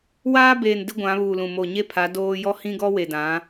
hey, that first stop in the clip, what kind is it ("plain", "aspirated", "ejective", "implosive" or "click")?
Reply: plain